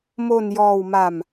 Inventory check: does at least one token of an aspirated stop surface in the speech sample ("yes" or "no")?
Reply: no